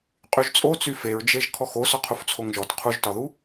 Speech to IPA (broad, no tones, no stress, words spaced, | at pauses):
qʼyʒt͡sʼot͡sy feɹd͡ʒeʒ kʰɔxo sɔqʰuft͡sʰoŋʒɔt qʰuʒtɒðu